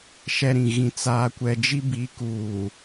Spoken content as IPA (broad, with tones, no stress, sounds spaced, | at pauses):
ʃ ɛ˦ ɾ ĩ˨ ɣ ĩ˨ t͡s aː˦ kʷ ɛ˦ d͡ʒ i˦ b i˨˦ k uː˨